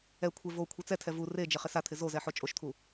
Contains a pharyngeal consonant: yes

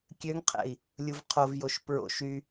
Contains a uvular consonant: yes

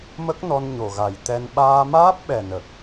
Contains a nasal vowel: no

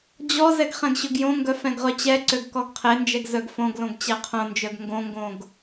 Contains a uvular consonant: yes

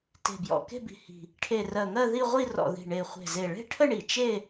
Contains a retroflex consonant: yes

